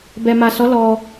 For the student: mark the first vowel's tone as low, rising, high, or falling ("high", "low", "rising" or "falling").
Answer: low